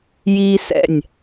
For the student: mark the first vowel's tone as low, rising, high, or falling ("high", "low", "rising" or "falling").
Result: high